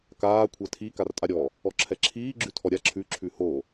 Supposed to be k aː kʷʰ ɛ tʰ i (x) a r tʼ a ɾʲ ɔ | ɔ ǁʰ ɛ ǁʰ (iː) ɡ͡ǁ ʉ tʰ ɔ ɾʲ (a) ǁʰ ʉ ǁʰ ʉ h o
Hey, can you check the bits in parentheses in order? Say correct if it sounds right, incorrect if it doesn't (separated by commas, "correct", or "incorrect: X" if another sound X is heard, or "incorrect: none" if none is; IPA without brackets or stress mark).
incorrect: k, correct, correct